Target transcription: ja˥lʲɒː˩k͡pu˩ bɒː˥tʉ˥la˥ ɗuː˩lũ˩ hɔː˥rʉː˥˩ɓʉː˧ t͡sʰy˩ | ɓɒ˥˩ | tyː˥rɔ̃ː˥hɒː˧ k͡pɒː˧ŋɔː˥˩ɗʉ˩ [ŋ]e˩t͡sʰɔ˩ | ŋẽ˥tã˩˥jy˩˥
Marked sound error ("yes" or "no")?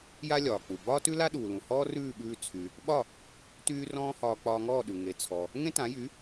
no